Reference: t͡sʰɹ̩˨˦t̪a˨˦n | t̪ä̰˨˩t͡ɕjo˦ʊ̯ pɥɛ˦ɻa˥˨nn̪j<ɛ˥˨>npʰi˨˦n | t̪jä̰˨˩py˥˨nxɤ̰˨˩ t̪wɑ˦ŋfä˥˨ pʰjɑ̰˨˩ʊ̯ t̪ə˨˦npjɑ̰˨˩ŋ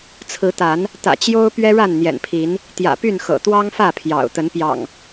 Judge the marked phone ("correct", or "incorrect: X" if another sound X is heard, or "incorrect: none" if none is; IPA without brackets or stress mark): incorrect: ɛ̰˨˩